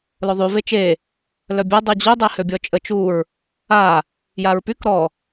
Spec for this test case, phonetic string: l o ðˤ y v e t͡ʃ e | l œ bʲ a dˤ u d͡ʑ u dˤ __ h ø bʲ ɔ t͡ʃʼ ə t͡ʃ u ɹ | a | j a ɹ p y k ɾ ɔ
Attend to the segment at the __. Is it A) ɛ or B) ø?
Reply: A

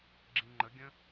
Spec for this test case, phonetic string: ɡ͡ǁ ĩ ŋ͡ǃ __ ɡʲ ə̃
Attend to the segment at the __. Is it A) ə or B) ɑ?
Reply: A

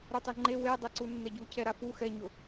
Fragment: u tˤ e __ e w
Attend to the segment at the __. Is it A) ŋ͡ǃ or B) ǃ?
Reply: A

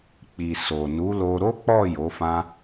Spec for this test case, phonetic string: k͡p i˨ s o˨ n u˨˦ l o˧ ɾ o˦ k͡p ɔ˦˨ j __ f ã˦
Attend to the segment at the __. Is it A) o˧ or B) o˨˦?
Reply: B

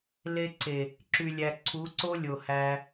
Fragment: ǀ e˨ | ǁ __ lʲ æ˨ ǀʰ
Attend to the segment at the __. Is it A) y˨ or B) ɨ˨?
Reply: A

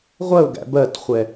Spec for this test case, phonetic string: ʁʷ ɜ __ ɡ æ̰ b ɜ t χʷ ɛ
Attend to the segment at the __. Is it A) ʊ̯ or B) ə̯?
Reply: A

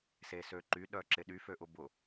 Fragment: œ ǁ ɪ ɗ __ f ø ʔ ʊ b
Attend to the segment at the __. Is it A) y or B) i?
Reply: A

